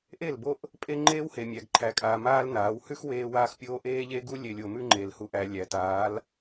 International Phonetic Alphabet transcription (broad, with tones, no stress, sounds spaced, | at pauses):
ʔ e˦˨ l b o˦ ʔ | pʼ e˦ ŋ͡ǃ eː˦ w h e˨ mʲ æ˨ ɡ ǃʰ æ˨˦ kʼ aː˨ m aː˦ l n aː˨˦ w h ʉ˦ x w eː˦ w aː˦ x pʲ oː˦ ʔ eː˦ ʎ e˦ ɡ u˦ lʲ e˨ lʲ o˨ m ʉ˦ ŋ͡ǃ eː˨ l h u˨ ʔ æ˨ lʲ æ˨ t aː˨˦ l